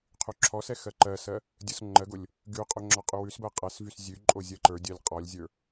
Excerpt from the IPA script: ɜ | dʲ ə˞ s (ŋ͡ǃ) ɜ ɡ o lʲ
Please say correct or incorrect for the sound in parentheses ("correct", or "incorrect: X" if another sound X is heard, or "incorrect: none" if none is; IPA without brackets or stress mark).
correct